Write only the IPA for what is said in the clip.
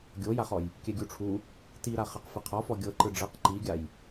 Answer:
ɡʲ o j a χ ɔ j | kʲ ɛ ɡʲ u ʈ͡ʂʰ u | t i ɾ a χ ɛ q f i qʰ ɔ f ɔ ɡʲ ɤ ǃ ɯ ɖ͡ʐ ɤ q ǃ i ɡʲ a j

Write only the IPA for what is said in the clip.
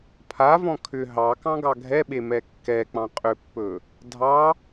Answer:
pʰ a v ɔ̃ kʰ ʏ ɦ ɑ k ɑ̃ ɡ ɑ ɡʱ ɛ ɓ e m ɛ kː ɛ k͡p ɑ̃ qʼ ʏ pː ɵ | dʱ ɑ

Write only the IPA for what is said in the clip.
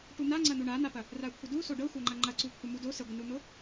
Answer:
ʈ u n̪ a ŋ͡ǀ ɐ n̪ u ɳ a n̪ a p ɐ | r a kʷʰ ə d u s o ɖ ɤ xʷ a ŋ͡ǃ ɐ ŋ͡ǃ ɐ ǀ u kʷʰ ɐ m u d o s ə ɡʷ ə n u n̪ o

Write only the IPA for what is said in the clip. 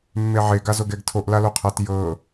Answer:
mː e ʕ e ɡ a z o ɡ ɛ ɡ tʰ o ʔ l a l o qʰ a t j ɤ

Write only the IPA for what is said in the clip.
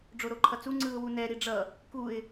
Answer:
ɖ͡ʐ o ɾ o ǃʰ ʌ t͡s u ŋ͡ǀ ɯ ʊ̯ w u n ɛ ɾ i ɖ͡ʐ ʌ | k u ɪ̯

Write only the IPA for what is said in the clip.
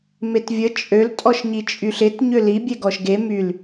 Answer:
m e t vʲ ə t͡ʃʼ ø l tʼ ɔ ʃ ɲ i t͡ʃʼ y ɬ ɪ t ɲ ø l i bʲ ɛ ɡ ɔ ʃ ɡ e m y l

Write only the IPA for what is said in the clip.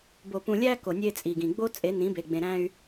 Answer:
b o˨ p ũ˨ lʲ æ˦ k o˨ nʲ e˦ t͡sʼ i˨ ɡ ĩ˨ ɡ͡b o˦ t͡sʼ e˨˦ n ĩ˨˦ b e˨ ɡ͡b ẽ˨ ɾ æ̃˦ y̯

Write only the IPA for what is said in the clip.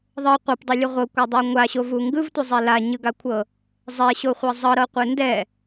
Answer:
ðˤ ɤ qʷ ɯ p dˤ o lʲ ɯ ʁʷ ɤ kʷ a dˤ o ŋʷ a ɕ o v u ŋ ɡ ɯ v tʷ ɯ zˤ ɛ l a ɲ ɯ ɡ a kʷʰ ɤ | zˤ ɛ ɕ o χʷ ɤ zˤ ɤ ɾ ɤ qʷ ɯ n d ɛ

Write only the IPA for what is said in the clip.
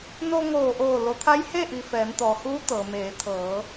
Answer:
n o˧ ŋ oː˧˩ ʔ oː˧˩ l o˩˧ t̪ʰ a˧˥ j h e˥˨ ʔ i˩ f ɛː˩˧ n t̪ ɔː˩ h uː˧˥ t̪ ɤː˩ m eː˩˧ t̪ʰ ɤː˩˧

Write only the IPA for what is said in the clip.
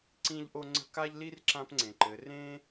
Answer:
ǀ ĩ˦ ʎ ʔ o˦ ŋ͡ǀ ə̤˦ k a˦ ʎ l i˦ r ǁ ã˦ p ŋ͡ǀ ẽ˨ ǃ ɘ˨˦ r ẽ˦

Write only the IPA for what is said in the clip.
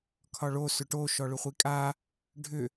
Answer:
kʰ ɒ ɭ o s ʏ ʈ o ʃ ɔ ɭ ʏ χʷ i kʼ a | ɖʱ ʏ

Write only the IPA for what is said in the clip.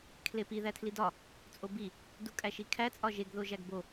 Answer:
kʰ l e p i ð æ tʰ l i d ɒ | t͡sʼ o b i | d u kʼ æ ʃ i kʰ æ t͡sʼ ɒ ʒ e ɡ ð o ʒ æ ɡ b o

